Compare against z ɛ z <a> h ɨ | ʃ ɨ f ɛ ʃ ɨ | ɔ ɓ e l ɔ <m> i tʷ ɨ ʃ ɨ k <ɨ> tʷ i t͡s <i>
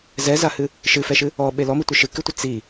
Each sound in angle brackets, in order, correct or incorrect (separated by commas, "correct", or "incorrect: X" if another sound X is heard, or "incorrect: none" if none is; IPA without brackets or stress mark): correct, correct, correct, correct